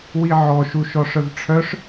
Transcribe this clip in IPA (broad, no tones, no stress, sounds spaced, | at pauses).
w i ʕ ɔ ʃ u ʃ ɔ ʂ œ v ʈ͡ʂʰ œ ʂ